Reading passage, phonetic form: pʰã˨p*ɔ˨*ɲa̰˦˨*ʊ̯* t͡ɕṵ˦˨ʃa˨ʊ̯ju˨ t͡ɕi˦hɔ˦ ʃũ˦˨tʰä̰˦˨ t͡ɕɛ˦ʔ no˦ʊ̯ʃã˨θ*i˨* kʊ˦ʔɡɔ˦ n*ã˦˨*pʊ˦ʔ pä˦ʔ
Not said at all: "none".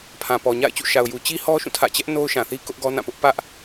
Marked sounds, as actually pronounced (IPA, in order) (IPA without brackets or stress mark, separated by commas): ɔ˨, ɪ̯, i˦, ã˦˨